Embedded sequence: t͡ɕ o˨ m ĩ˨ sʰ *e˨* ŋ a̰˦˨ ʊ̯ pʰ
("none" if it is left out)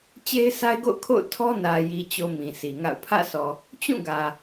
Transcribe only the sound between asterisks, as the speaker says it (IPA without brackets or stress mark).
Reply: i˨